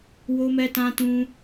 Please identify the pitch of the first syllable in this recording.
high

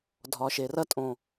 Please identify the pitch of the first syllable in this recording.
low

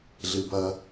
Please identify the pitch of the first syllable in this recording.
low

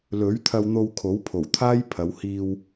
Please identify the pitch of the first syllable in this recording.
rising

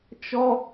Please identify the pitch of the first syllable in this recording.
high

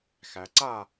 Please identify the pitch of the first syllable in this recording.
low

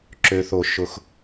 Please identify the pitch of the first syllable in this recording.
low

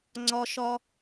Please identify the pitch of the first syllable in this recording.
high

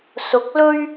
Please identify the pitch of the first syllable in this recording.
rising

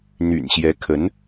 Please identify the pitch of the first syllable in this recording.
low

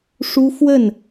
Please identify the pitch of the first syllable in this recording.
high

